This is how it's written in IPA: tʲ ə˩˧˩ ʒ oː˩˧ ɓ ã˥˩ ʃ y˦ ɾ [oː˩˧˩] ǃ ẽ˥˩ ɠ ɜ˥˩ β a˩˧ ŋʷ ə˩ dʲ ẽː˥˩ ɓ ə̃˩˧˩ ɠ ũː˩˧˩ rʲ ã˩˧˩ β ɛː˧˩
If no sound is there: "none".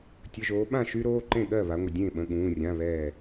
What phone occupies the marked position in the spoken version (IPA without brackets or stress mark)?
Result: oː˩˧˩